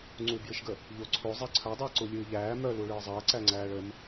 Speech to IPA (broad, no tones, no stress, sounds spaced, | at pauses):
ŋ͡ǀ u b j ɨ ʃ ɡ ə | ʎ o ǀʰ o zˤ æ ǀʰ œ dˤ əː ǀ u lʲ ɨː ʎ æː m œ l u ɭ ɨː zˤ əː ǀ æ ŋ͡ǀ æː ɭ ə m